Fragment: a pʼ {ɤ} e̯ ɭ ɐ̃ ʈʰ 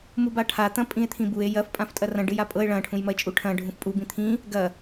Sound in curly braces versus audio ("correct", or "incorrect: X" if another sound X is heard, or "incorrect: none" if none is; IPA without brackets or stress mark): correct